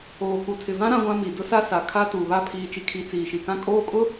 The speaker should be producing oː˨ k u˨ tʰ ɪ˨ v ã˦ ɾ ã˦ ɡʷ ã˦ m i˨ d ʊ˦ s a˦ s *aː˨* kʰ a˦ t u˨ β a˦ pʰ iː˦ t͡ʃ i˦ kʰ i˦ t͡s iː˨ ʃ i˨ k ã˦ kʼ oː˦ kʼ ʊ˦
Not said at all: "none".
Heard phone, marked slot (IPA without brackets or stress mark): a˨